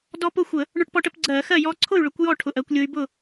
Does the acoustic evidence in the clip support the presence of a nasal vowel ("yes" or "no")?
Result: no